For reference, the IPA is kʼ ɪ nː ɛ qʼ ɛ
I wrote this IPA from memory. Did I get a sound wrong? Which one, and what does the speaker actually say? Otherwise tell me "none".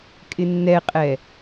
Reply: none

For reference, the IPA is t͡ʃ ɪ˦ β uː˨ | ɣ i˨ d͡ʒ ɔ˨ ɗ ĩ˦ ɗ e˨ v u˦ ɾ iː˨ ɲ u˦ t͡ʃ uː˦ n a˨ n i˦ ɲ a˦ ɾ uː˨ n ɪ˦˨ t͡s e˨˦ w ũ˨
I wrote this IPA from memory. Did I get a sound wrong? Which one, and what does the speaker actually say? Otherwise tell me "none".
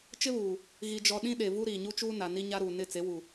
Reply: ũ˨ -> u˨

